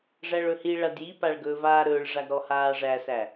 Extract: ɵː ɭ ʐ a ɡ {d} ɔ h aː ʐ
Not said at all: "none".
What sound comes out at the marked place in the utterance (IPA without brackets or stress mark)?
ɾ